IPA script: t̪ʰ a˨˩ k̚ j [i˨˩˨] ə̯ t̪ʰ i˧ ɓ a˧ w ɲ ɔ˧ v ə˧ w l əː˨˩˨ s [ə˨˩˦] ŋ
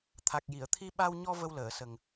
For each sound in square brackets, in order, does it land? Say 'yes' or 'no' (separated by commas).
yes, no